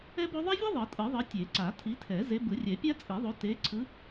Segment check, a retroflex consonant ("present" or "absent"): absent